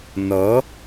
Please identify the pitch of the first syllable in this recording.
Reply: rising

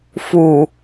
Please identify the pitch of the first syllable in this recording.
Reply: low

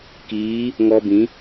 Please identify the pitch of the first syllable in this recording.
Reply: rising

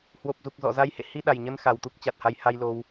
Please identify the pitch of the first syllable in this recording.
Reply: low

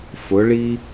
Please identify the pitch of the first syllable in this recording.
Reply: rising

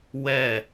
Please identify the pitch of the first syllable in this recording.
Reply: falling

